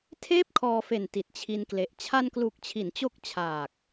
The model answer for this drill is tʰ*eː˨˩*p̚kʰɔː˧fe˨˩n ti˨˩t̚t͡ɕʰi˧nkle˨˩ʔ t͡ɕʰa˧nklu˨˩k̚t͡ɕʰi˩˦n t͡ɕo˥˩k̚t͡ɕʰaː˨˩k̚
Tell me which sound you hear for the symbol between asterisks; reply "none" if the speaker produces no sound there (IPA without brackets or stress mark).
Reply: eː˥˩